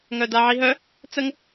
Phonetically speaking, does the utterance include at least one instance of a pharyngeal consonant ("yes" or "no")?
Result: yes